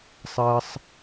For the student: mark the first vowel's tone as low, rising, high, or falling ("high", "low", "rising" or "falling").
high